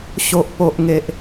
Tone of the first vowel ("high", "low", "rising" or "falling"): low